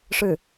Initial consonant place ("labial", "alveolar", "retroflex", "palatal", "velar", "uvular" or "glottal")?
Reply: retroflex